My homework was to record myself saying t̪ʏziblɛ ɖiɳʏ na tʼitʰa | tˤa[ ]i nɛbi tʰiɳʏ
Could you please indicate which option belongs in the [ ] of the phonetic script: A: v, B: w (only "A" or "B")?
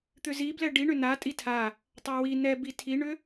B